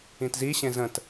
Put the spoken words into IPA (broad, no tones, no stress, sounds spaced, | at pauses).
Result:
ĩ t z i ɕ ẽ z ə̃ t